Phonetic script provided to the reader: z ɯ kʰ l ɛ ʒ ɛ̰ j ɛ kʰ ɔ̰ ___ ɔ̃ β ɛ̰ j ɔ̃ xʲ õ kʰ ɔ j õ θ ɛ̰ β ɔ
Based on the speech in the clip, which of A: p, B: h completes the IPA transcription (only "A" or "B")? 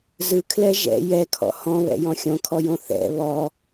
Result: B